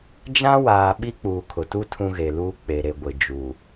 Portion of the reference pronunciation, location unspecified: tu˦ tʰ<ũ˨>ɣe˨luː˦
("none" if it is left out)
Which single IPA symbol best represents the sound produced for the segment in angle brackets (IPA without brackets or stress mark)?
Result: ũ˦